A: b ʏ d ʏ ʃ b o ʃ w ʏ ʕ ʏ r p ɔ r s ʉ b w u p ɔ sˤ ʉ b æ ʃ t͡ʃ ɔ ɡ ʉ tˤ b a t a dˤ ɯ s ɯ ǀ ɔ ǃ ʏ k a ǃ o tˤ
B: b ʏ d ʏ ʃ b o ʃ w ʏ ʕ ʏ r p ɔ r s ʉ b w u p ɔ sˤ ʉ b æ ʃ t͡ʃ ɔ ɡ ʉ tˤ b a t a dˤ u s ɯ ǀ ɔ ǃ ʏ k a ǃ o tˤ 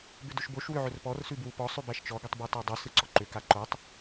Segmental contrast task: B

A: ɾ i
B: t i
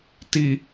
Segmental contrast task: B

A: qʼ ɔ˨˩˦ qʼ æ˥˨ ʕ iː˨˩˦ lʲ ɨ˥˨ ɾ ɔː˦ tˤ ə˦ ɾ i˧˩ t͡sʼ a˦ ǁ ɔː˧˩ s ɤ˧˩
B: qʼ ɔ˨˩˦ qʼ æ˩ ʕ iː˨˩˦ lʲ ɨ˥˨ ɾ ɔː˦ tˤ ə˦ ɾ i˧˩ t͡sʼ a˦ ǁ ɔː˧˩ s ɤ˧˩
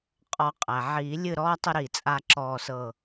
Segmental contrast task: B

